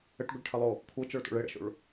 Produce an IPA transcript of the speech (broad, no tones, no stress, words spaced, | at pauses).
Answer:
əʈɡʷəɭʈʰəlˠo | kʷʰɤt͡ʃɔɭto̰ɭ ɘɽə̰ʃo̰ɭ